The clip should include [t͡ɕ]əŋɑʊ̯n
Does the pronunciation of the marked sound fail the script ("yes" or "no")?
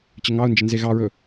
no